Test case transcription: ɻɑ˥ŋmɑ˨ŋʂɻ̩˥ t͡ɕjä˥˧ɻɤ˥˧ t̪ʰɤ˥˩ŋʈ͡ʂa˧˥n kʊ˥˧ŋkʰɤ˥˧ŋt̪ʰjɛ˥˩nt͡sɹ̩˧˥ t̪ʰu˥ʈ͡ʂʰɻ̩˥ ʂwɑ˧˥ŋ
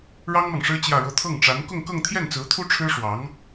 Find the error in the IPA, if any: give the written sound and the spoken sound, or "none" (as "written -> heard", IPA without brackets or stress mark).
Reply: kʰ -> k